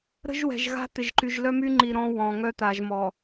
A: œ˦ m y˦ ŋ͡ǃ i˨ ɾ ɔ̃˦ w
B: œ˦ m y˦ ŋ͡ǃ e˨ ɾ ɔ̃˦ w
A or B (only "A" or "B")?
A